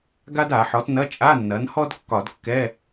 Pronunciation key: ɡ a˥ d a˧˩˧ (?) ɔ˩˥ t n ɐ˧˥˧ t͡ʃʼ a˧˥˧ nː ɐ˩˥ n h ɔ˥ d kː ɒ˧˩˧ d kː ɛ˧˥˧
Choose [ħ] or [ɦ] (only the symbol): ħ